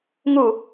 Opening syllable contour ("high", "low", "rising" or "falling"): falling